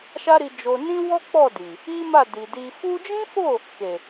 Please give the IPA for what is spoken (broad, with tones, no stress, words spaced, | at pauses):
ʃa˦ɾi˧d͡ʒo˧ nĩ˦wɔ˦k͡pɔ˦˨di˨ | i˦ma˦˨di˨di˧ fu˧d͡ʒĩ˦fo˦˨ | ke˨